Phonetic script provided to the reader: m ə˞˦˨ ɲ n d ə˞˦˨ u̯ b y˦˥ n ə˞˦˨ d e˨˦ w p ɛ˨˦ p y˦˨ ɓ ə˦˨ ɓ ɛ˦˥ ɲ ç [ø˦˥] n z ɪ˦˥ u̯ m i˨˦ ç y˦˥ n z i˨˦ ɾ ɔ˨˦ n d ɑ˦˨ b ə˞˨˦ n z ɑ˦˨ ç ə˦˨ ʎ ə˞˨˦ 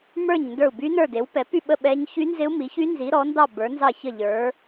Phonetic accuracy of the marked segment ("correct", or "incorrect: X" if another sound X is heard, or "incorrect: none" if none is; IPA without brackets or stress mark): incorrect: y˦˥